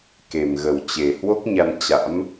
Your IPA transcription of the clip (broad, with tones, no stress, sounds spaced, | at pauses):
k e˨˩ m ɣ ə˨˩ w t͡ɕ e˨˩ h w o˦˥ k̚ ɲ a˧ n t͡ɕ a̰˧˥ m